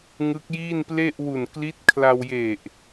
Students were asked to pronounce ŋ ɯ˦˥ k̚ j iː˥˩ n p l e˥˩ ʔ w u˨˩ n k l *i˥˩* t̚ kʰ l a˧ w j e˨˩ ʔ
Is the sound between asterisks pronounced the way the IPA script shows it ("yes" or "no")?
no